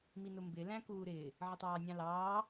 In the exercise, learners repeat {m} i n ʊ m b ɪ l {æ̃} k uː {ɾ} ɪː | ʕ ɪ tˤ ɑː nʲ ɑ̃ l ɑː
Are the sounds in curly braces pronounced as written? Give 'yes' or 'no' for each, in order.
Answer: yes, yes, yes

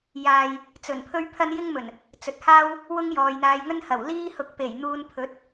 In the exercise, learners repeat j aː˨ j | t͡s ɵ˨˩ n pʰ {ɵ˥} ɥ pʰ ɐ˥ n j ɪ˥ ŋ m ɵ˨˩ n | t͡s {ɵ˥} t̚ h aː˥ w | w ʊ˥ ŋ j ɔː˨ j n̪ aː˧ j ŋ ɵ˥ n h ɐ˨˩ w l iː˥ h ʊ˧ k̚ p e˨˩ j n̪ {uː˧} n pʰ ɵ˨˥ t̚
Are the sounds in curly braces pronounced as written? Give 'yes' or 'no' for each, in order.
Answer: yes, no, yes

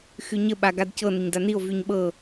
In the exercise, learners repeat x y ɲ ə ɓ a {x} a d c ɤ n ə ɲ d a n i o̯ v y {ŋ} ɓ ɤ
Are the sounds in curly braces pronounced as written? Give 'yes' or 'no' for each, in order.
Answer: no, no

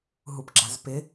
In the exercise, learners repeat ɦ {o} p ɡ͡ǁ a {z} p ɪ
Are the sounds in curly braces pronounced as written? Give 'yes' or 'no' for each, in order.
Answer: no, yes

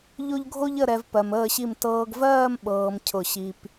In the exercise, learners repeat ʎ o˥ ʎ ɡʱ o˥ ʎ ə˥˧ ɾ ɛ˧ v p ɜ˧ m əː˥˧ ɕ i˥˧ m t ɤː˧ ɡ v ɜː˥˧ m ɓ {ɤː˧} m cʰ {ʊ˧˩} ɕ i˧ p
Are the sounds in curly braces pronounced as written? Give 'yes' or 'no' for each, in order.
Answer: yes, yes

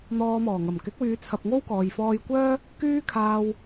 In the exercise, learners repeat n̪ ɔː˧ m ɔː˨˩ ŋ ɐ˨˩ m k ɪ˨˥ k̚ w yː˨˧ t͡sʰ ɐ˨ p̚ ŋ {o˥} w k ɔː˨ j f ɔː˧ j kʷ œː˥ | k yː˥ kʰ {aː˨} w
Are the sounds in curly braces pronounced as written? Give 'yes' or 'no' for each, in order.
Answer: yes, no

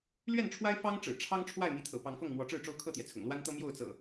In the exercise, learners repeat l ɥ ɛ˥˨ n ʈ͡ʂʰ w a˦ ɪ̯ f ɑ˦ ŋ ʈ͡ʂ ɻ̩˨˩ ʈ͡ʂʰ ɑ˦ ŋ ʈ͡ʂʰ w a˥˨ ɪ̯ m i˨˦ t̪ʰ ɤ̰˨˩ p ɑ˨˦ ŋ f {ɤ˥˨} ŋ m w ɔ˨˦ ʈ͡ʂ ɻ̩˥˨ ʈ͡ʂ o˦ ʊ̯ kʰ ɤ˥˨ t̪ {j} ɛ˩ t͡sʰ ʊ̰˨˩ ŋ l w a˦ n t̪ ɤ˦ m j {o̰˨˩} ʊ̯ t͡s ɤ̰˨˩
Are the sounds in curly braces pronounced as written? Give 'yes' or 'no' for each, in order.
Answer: yes, yes, no

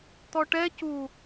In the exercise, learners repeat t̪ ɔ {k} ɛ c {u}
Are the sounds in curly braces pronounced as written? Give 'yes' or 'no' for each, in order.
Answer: no, yes

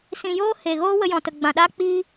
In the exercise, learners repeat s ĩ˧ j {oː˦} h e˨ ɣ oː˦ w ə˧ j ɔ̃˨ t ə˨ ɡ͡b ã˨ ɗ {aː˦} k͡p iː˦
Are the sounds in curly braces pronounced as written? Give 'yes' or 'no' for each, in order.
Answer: yes, yes

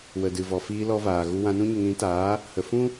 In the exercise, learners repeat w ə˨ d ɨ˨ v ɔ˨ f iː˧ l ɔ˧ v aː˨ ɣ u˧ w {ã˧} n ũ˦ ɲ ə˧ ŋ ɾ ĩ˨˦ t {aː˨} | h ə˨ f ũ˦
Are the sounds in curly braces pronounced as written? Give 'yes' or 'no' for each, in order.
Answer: yes, no

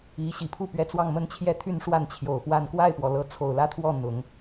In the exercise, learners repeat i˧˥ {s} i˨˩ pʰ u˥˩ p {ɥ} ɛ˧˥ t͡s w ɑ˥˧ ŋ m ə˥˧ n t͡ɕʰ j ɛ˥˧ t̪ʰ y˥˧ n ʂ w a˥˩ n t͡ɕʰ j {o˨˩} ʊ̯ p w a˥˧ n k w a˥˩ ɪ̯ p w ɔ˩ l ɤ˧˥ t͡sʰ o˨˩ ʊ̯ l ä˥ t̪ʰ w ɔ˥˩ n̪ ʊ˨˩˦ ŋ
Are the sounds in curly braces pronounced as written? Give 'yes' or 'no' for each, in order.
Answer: no, yes, yes

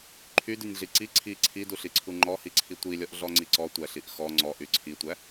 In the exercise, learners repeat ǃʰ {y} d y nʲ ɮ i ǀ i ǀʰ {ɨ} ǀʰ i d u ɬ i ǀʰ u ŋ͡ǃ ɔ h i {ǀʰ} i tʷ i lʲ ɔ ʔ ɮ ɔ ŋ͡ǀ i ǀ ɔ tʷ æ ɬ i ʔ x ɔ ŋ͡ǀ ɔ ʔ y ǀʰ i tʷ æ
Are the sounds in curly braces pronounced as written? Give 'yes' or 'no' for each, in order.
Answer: yes, no, yes

